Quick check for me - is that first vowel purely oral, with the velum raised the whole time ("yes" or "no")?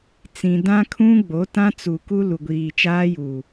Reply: no